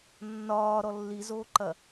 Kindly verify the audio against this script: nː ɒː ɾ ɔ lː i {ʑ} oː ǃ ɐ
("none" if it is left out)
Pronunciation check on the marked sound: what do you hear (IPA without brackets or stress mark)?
z